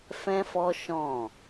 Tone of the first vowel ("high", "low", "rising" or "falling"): high